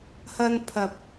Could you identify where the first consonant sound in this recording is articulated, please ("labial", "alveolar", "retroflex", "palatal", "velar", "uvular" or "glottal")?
glottal